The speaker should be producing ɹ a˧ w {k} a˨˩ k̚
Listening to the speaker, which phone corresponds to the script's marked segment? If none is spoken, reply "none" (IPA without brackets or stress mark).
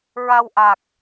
ʔ